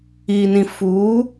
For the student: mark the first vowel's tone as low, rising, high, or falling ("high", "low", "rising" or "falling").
low